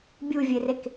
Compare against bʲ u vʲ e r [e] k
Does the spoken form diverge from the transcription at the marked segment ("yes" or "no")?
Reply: no